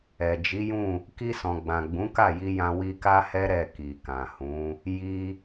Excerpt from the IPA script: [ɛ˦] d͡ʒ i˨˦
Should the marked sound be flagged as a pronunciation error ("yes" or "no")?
yes